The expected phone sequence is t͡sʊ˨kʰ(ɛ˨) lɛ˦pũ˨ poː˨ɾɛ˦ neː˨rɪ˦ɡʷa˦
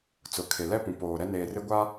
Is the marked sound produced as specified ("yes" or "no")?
no